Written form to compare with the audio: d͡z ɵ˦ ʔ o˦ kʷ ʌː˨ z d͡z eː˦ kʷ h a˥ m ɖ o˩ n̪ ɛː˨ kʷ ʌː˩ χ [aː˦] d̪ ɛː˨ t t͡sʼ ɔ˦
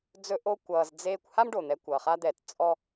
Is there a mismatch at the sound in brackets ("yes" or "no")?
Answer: yes